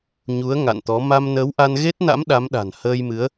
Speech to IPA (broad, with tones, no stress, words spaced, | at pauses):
ɲu˨˦ə̯ ŋa̰˧˨nt̪ɔ˨˦ ma˧mnəː˨˦wʔa˧n ɣe˦˥t̚na̰˧˥m ɗa˨˦mɗa̤˨˩nhəː˧jmɨ˨˦ə̯